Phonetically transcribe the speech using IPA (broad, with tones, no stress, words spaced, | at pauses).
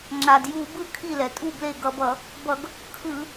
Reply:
ŋ͡ǁa˩dju˧˩˧bɯ˥˩ kʰi˥˩lɛ˩tʼu˥˩ble˥˩ ɡʌ˧˩˧b ʌ˧˩˧ | bʌ˧˩˧ɡ | kʰɯ˧˩˧